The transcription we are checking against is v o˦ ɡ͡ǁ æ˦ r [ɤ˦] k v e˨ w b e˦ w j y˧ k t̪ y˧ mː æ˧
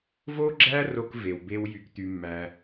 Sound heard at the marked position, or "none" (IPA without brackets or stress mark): o˦